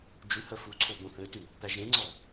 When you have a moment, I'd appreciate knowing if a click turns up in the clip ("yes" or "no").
yes